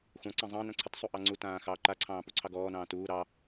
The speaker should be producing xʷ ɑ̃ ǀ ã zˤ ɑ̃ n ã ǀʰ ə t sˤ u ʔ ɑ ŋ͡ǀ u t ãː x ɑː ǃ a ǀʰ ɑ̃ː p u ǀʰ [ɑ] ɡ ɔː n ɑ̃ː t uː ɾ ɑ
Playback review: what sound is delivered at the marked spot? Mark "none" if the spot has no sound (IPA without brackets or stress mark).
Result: ɑ